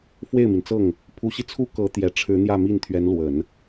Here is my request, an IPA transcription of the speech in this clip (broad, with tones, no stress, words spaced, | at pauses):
fwe˥˩ɪ̯mi˩nt͡sɤ˥˩ŋ | pʰu˧˥ɕi˧ t͡sʰu˥kɤ˧˥t̪jɛ˨˩ ʈ͡ʂʰɻ̩˧˥n̪jä˥˧mi˥˩nt̪ʰɥɛ˧˥n lwə˨˩˦n